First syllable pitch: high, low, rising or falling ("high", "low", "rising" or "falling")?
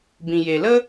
low